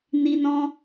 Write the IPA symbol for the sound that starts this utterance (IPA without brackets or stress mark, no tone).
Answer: n